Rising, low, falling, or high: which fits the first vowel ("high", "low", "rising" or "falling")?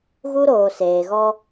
high